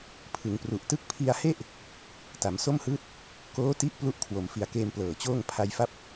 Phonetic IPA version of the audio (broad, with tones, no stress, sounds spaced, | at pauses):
pʰ ɯ˩˦ ŋ p r u˨˩ ʔ t ɯ˦˥ k̚ pʰ i˧ a̯ h e˥˩ ʔ | t a˩˦ m s o˥˩ m h ɯː˥˩ t̚ | k oː˦˥ t i˦˥ ʔ p l u˥˩ ʔ kʰ w o˩˦ m f i˨˩ a̯ k eː˧ m p l ɤː˨˩ t͡ɕ oː˥˩ ŋ pʰ a˧ j f a˦˥ p̚